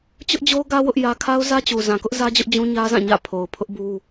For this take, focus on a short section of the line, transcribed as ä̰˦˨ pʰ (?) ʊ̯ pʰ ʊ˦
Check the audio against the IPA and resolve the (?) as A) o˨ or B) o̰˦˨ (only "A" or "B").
A